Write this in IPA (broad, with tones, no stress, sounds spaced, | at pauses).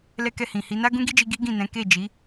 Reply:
l ɛ˦ k ɛ˦˨ h ĩ˨ h i˨˦ n a˦ ɡ ũ˦ ɡ i˦ d͡ʒ i˧ ɡ i˦ ɡ ĩ˦˨ n ɛ̃˨˦ k e˦˨ d͡ʒ i˨˦